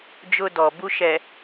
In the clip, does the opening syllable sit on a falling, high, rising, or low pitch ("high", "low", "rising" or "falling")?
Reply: high